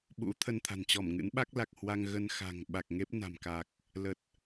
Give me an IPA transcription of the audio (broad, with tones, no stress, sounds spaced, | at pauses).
ɓ ṵ˧˥ t̪ʰ ə˧ n t̪ʰ a̤˨˩ n t͡ɕ ɔ˧˩ m ŋ ɨ̰˧˥ n ɓ a˦˥ k̚ l a˨˩ k̚ h w a˧ ŋ ɣ ə˧ n x a̤˨˩ ŋ ɓ a˨˩ k̚ ŋ e˦˥ p̚ n a̤˨˩ m k a˨˩ k̚ | l ə˨˩ t̚